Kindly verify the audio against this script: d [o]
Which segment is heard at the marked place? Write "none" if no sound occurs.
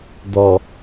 ɔ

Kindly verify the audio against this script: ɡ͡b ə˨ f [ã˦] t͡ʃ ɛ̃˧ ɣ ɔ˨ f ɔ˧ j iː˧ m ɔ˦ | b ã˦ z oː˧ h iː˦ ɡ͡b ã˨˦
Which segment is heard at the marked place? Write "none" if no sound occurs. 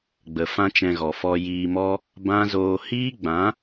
ã˦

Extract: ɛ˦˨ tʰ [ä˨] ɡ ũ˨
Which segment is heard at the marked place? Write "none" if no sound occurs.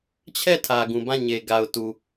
ä˨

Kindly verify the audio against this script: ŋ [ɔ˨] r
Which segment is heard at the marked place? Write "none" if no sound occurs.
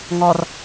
ɔ˨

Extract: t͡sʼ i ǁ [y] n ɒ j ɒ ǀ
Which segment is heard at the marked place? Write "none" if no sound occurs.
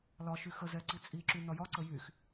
y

